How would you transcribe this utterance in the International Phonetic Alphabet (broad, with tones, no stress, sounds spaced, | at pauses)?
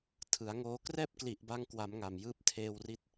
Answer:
tʰ ɯ˩˦ a̯ ŋ oː˧ k r ɛː˥˩ p̚ k l i˨˩ ʔ b a˧ ŋ k w a˩˦ m ŋ a˨˩ m j ɯː˦˥ p̚ tʰ eː˧ w r i˦˥ t̚